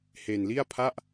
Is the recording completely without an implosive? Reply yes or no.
yes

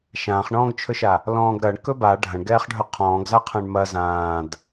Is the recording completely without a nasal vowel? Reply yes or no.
no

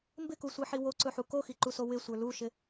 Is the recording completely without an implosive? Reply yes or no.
yes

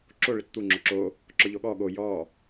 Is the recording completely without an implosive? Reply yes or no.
no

